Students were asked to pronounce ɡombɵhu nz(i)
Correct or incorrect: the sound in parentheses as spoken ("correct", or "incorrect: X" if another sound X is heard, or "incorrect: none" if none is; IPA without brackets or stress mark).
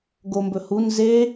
incorrect: e